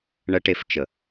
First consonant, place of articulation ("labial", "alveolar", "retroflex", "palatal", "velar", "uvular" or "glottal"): retroflex